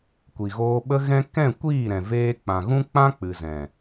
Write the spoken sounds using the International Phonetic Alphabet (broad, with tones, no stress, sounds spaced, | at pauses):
kʷ i˨ ɣ oː˧ ɓ ə˦ ɣ ɛ̃˦ k ɛ̃˦˨ kʷ iː˦˨ ɾ ɛ̃˨ v eː˧ k͡p ã˨ ɣ ũ˦ k͡p ã˦ k͡p ɨ˨ z ɛ̃˨